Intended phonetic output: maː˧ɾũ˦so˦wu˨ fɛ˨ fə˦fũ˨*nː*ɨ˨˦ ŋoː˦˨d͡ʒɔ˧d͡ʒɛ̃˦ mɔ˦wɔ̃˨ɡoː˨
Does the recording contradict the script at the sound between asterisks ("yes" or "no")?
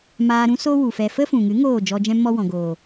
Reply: yes